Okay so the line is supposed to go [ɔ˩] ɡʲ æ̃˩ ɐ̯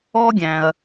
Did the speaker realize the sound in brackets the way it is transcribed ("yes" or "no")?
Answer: no